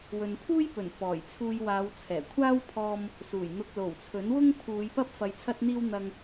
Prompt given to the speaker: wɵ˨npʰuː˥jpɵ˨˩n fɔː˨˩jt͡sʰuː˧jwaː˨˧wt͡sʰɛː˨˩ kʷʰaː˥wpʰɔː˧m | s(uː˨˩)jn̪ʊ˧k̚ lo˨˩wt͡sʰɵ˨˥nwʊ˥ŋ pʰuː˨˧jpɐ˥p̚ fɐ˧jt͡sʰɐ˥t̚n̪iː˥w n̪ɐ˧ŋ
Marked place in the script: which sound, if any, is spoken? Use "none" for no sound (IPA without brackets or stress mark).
uː˨˩